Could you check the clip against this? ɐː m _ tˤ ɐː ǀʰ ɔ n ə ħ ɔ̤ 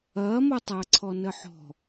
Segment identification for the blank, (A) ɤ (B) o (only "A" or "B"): B